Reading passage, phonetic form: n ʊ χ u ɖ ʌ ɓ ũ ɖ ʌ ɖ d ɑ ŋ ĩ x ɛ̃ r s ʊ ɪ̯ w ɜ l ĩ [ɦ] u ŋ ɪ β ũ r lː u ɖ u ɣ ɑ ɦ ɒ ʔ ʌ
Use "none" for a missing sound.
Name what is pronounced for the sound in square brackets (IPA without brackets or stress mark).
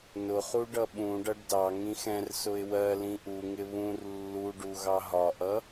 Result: ʔ